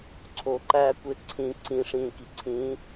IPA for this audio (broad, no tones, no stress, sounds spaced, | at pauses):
ǀʰ o ǃ æː kʷ e ǀʰ ĩ ǀ ĩ ʂ ĩː k i ǀʰ ĩː